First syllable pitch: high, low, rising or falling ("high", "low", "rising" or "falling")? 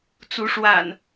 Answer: rising